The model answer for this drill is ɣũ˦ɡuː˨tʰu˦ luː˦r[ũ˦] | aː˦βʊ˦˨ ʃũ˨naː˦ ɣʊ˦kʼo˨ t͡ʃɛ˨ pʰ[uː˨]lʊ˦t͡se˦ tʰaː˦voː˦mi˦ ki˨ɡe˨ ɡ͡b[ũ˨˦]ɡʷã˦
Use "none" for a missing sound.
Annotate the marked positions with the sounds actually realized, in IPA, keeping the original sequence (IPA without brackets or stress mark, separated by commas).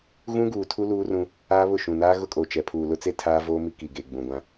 ũ˦, uː˨, ũ˨